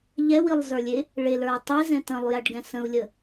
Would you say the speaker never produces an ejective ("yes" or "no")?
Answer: yes